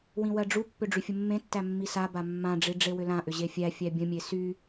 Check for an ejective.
absent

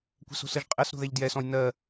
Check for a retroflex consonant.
absent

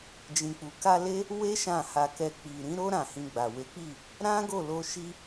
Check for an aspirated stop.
absent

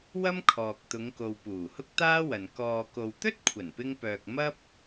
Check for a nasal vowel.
absent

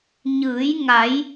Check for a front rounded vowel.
absent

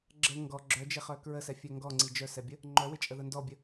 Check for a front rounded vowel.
present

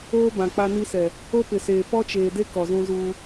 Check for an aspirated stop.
absent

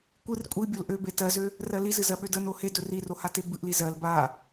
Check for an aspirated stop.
absent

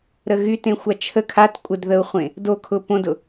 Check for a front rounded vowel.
present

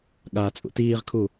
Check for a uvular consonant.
present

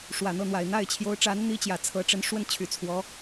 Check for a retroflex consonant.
present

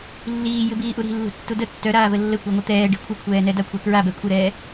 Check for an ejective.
absent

